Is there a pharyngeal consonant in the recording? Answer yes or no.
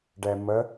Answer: no